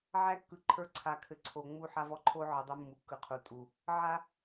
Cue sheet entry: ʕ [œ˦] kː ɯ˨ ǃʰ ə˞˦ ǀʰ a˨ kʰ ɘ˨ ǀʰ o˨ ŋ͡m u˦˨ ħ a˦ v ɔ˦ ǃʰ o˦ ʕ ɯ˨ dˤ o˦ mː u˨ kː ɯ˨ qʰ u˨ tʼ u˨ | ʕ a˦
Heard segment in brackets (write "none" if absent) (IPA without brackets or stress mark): æ˦